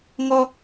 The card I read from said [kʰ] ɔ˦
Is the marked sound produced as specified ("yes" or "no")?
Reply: no